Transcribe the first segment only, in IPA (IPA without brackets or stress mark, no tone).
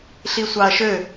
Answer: ɬ